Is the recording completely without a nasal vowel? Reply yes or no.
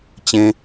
no